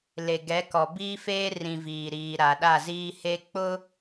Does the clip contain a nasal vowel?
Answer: yes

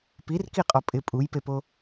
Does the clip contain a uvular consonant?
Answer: yes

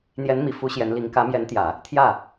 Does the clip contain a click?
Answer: no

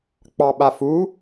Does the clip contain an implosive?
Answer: yes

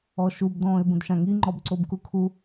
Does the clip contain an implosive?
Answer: no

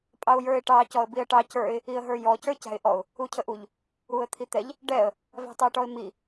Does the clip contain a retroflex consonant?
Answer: yes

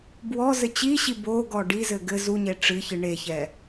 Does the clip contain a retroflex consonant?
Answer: yes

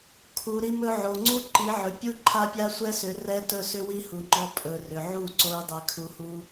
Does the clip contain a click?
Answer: yes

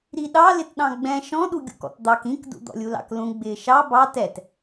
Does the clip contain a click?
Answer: no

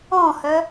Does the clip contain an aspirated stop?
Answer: no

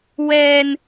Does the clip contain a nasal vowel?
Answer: no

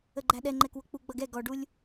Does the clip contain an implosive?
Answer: yes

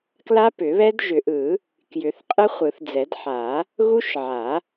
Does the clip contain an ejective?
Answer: yes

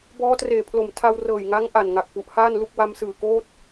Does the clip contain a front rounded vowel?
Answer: no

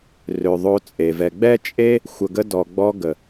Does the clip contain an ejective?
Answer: yes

